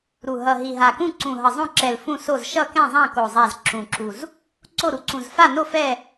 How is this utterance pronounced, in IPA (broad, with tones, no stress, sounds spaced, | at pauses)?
ɾ u˨˩ ɦ ʌ˨˩ ɦ i˨˩ ɦ a˨˩ k ũ˦˨ ǀ ũ˨˩ ɦ ʌ˨˩ zˤ õ˦˨ ǁ ɛ˨˩ l f ũ˦˨ s o˦˨ z ʃ ʌ˦˨ k ɛ̃˦˨ zˤ ã˦˨ k o˨˩ zˤ a˦˨ z ǁ ũ˨˩ ǁ u˨˩ z | ǀ o˦˨ ɾ u˨˩ ǀ ũ˨˩ z f a˦˨ n o˦˨ f ɛ˦˨